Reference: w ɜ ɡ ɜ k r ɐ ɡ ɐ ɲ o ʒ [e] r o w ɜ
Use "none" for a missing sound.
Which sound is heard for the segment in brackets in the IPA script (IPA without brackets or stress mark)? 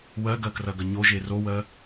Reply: e